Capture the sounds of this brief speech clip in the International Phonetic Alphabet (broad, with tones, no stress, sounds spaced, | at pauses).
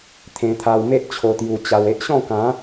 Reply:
t̪ʰ ẽ˧ t̪ʰ a˧ w m e˦ ʔ t͡ɕʰ o˧ t̪ j u˧ t͡ɕ a˧ w e˦ ʔ ɕ ɔ̃˥˧ k ã˨˦